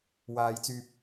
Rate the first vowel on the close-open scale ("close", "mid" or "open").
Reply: open